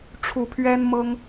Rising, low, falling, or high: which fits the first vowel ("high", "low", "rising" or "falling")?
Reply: rising